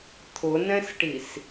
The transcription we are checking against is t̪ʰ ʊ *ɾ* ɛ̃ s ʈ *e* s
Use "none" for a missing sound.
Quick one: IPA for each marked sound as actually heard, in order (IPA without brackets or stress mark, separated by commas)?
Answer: n, i